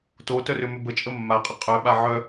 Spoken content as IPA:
totœrʏmʏ bət͡ʃʼə mːaqʼə qʼœɓa ʕœ

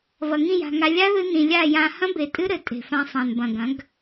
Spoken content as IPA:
vɐ˨ŋĩ˦˨ja̤˨ŋa˧ lʲa˦ðɨ˧ nĩ˨lʲa˦˨jã˧ hɐ̃˦be˨ tʼɨ˦ɾɘ˨ tʼe̤˨fã˧ sˤã˨nbɐ̃˨ɡɐ̃˨˦ɡ

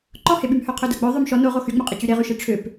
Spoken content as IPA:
ǃɔheɓymhœ qʰœdœɡ͡bœ ðˤømʃɔ noʁo xyŋ͡mœqʼe t͡ɕyɾeʁyʃe ʈ͡ʂʰøp

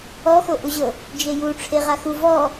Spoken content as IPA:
ɔxoʔuʑɤ | d͡ʒeju ʈ͡ʂʰeʁaxu vɔ

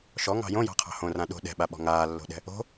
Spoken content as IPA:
ʃɔŋɑ̤ jõjɑ̤qʰɑ̤ hõrã ɗo̤ ɗɛ̤ɓaɓɔ̤ ŋaːlːo̤ɗɛ̤ | o̤

